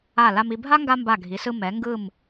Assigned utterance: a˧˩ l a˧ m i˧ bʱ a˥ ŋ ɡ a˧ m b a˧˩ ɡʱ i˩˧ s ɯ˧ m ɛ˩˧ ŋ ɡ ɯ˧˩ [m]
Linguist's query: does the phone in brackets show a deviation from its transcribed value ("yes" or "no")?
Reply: no